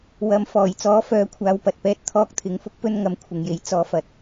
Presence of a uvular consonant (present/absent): absent